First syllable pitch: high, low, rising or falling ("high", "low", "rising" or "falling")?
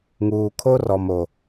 low